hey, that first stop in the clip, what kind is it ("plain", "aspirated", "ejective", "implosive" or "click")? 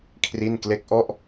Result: aspirated